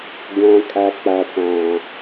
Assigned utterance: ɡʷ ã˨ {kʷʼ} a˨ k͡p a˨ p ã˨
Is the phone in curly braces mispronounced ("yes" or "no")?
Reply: yes